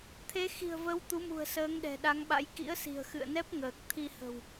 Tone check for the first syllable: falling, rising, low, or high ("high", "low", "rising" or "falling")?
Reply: rising